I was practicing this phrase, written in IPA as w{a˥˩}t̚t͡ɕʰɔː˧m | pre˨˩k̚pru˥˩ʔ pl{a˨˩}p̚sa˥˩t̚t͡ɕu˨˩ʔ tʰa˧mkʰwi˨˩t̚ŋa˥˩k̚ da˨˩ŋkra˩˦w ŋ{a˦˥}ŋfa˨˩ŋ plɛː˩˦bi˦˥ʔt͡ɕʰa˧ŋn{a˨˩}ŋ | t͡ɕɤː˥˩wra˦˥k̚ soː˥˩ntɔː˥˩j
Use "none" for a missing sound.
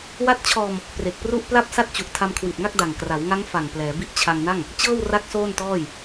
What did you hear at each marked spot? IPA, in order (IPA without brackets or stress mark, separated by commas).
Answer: a˦˥, a˥˩, a˦˥, a˥˩